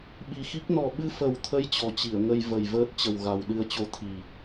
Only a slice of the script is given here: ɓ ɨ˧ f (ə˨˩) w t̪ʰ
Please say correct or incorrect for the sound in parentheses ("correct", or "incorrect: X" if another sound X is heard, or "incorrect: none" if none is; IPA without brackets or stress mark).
correct